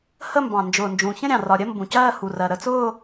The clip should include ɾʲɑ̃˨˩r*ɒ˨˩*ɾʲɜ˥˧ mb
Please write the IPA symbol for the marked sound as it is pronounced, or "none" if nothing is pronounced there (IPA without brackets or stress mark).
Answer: ɒ˨˩